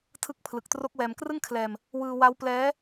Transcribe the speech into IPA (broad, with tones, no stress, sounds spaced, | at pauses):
tʰ ɯ˦˥ k̚ pʰ l ɯ˨˩ k̚ t r o˦˥ k̚ w ɛː˧ m k r ɯ˥˩ ŋ kʰ l ɛː˧ m | w ɯː˧ w a˦˥ w p l ɛː˦˥